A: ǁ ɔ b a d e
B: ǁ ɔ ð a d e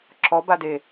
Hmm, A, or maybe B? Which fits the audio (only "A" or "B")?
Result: A